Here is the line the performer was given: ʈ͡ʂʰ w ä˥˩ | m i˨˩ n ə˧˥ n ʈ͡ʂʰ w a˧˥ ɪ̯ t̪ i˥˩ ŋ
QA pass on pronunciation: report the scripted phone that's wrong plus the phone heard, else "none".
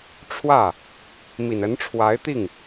none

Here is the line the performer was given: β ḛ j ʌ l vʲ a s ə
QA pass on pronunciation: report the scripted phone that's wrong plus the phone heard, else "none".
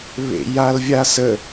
ʌ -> a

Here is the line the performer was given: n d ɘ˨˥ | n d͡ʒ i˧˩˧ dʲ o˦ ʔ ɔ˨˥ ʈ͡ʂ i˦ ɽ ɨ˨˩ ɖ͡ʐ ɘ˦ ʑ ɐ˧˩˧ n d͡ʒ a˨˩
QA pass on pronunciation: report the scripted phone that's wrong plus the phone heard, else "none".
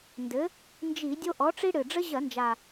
none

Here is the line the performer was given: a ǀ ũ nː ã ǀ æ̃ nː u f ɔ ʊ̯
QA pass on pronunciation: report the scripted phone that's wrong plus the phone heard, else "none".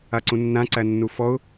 æ̃ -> æ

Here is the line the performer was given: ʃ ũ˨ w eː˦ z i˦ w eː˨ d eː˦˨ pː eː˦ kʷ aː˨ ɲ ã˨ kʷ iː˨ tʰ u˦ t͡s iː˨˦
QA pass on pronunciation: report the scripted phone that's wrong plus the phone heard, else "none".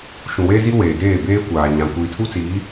pː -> b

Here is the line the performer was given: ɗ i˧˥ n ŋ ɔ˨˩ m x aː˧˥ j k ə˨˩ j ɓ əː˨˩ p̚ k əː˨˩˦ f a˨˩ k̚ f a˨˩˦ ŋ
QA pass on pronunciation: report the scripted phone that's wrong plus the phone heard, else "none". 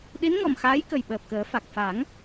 none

